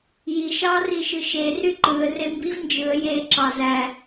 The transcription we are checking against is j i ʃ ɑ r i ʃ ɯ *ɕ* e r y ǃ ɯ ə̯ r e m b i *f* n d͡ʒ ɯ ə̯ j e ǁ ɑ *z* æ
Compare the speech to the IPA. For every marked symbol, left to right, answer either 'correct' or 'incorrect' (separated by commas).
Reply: incorrect, incorrect, correct